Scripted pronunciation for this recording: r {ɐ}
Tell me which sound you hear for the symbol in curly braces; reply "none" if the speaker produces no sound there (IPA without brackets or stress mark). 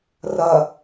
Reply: ɐ